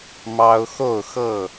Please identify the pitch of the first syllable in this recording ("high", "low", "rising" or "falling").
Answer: high